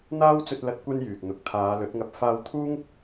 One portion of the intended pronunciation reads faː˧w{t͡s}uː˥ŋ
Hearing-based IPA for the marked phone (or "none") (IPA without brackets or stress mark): t̪ʰ